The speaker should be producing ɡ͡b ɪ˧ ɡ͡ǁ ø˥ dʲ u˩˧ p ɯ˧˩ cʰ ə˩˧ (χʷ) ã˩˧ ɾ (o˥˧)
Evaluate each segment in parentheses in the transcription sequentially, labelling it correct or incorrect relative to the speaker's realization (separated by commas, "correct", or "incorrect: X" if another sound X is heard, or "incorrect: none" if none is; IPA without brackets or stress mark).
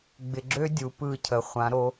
correct, incorrect: o˩˧